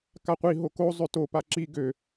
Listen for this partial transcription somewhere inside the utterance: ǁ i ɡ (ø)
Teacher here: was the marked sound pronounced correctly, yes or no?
yes